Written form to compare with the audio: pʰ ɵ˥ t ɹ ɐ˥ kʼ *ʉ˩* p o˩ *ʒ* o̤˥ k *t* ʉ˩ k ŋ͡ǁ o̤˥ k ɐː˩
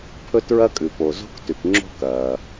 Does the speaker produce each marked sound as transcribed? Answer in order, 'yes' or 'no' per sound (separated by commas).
yes, no, yes